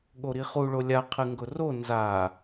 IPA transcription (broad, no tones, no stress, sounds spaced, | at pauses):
ɠ o ɾ i χ u ɭ o lʲ a qʰ ɨ ŋ ɡ ʊ r o n z a